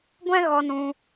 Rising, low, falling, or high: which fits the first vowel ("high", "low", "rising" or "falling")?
high